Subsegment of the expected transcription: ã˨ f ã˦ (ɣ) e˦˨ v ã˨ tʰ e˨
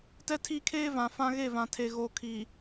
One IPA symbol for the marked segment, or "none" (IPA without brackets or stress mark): ɣ